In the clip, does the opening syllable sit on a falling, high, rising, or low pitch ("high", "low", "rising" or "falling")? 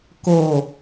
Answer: low